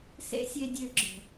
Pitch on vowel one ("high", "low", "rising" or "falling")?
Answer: high